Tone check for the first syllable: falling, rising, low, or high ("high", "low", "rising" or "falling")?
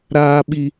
high